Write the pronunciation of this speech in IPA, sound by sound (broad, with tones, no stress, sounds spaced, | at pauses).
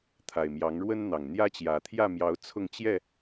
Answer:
t̪ʰ a˨˩ ɪ̯ m j ɑ˨˦ ŋ ɻ w ə˦ n n̪ ɑ˨˩ ŋ n̪ j ä˦ t͡ɕ j ä˨˩ t̪ʰ j ä˥˨ m j ɑ˨˦ ʊ̯ t͡sʰ ʊ˥˨ ŋ t͡ɕ j ɛ˥˨